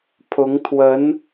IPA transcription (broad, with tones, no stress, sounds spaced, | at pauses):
pʰ ʊ˧˥ ŋ t̪ʰ w ə˧˥ n